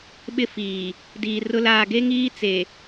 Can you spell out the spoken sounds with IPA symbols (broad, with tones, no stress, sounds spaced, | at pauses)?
ɓ ɪ˦ f iː˨ | d iː˨ r ʊ˦ l aː˨ ɡ e˦ ŋ iː˦ t͡s e˨